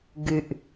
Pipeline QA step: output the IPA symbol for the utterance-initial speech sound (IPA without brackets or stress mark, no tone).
ɡ